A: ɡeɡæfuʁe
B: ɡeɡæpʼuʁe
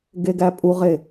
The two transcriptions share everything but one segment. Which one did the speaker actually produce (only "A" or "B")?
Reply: B